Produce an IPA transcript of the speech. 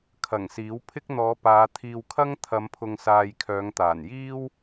kʰ ɐ˨˩ ŋ s iː˨˥ w pʰ ɪ˥ k̚ n̪ ɔː˨˧ p aː˨˧ t̪ʰ iː˨ w kʰ ɐ˥ ŋ t̪ʰ ɐ˨˧ m pʰ ʊ˨ ŋ s aː˨ j kʰ œː˨˧ ŋ t̪ aː˨˩ n j iː˥ w

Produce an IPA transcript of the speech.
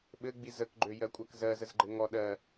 ɓ ɘ ɡ͡b i z ə k ɡ͡ǃ ø j ɜ kʷʼ ɜ k z ɜ z ə z ɡ͡ǃ ɘ ŋ ɔ ɗ ɜ

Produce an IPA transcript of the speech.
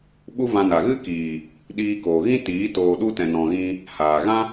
ɓ u˦ v ã˧ n a˨ ɣ ɨ˦ k iː˨ | ɗ iː˧ k oː˨ ɣ ĩ˦ t iː˨˦ t oː˧ ɗ u˦ t ɛ̃˨ n ɔ̃˨ ɣ ĩ˧ | h aː˨ ɣ ã˦

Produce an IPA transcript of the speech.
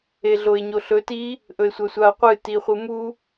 e ɮ o e̯ ɲ o ɬ ɵ t i | ʔ ɵ e̯ sʷ ɐ sʷ a o̯ qʷ ɨ t i χʷ ɨ m u

